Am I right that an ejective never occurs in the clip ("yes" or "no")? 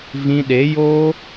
yes